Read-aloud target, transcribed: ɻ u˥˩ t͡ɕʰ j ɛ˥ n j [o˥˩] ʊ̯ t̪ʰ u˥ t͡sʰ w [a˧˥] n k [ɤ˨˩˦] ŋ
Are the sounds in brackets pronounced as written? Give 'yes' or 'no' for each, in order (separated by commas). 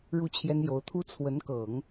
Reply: no, no, yes